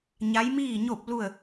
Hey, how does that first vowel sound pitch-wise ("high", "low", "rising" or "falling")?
rising